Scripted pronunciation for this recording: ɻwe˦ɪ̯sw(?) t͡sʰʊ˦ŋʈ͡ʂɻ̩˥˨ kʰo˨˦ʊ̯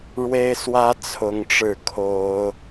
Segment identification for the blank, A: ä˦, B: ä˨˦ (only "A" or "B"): A